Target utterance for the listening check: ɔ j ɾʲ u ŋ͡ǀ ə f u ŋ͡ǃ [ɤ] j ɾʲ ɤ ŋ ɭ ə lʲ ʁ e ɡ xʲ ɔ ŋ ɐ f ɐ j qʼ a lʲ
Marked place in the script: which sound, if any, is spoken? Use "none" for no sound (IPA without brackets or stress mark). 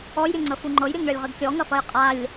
ɤ